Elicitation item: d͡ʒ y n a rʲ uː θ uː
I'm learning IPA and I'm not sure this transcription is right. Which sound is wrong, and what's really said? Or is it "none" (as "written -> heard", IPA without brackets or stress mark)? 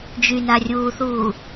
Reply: none